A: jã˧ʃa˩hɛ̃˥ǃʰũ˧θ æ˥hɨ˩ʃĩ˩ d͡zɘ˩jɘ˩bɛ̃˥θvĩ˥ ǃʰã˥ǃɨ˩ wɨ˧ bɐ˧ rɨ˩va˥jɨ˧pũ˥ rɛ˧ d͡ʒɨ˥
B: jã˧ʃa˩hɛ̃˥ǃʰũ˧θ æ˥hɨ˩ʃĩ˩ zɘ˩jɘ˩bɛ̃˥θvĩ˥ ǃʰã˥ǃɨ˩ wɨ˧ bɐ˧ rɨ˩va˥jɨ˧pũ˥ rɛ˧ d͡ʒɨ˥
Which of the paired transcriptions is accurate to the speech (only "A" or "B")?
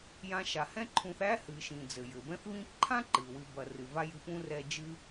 A